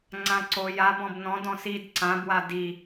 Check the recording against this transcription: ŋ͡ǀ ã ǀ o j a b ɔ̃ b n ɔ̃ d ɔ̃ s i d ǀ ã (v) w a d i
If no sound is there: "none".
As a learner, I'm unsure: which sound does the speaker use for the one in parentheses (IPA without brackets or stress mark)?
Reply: b